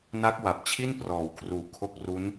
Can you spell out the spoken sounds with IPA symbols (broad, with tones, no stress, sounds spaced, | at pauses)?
n a˦˥ k̚ w a˨˩ p̚ t͡ɕʰ i˥˩ n p r ɔː˩˦ w kʰ r uː˨˩ kʰ o˦˥ k̚ r u˦˥ n